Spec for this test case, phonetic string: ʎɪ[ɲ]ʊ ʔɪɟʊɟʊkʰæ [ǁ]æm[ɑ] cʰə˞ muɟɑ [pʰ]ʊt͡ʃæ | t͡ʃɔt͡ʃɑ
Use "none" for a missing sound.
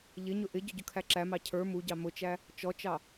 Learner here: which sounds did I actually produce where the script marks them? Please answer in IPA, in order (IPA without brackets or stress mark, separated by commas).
ɲ, ǁ, ɑ, m